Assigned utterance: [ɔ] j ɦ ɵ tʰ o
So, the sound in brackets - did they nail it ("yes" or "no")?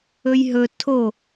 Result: no